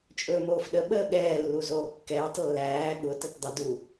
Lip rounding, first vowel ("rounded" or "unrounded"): rounded